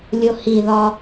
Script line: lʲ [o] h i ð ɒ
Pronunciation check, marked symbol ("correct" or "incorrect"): correct